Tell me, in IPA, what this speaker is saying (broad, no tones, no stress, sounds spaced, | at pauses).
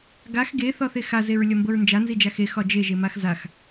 ɡ a x ɡ e θ ɒ θ e x a z e ɹ lʲ ɒ m b ɤ ɹ n d͡ʒ a n z i d͡ʒ a x e x ɒ d͡ʒ e ʒ e m a x z a x